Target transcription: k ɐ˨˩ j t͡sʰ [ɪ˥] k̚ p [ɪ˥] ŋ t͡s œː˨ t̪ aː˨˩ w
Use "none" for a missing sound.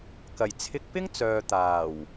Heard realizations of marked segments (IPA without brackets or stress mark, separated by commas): ɪ˧, ɪ˥